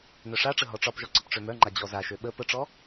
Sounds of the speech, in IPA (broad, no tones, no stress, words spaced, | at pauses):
nœʂaʈ͡ʂə ɦɔʈ͡ʂɒpʒɔ ǀəpʈ͡ʂømœŋ͡ǃa d͡ʑɔzaʃø ɓə pəʈ͡ʂɔ